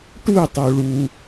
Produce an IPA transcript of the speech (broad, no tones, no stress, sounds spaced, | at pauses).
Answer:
ʈ u tˤ u ɭ u